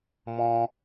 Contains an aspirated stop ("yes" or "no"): no